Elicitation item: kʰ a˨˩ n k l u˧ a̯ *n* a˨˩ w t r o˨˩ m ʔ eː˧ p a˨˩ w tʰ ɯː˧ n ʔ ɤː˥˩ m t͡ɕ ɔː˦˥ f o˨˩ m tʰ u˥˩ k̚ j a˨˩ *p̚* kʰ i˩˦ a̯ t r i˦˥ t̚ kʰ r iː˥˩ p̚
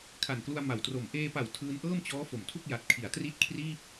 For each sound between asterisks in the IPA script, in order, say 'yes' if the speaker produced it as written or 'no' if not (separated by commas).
no, no